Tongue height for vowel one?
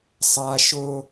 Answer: low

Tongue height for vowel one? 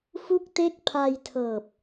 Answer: high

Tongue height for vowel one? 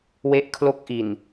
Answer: mid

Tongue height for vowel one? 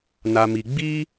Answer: low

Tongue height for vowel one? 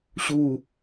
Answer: high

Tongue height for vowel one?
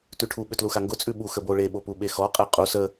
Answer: high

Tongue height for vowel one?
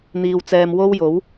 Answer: high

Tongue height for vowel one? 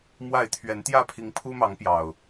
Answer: low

